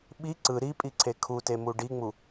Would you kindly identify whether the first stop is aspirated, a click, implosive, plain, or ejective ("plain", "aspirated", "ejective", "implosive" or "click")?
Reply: implosive